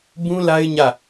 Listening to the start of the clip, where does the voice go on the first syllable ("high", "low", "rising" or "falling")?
high